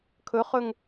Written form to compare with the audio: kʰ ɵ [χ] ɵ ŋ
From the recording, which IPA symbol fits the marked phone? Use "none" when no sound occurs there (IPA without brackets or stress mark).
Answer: χ